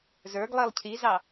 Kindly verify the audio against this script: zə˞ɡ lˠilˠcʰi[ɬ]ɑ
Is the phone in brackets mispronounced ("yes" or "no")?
yes